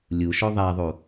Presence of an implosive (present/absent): absent